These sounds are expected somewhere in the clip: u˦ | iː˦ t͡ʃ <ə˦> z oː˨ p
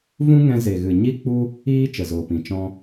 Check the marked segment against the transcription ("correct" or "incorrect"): incorrect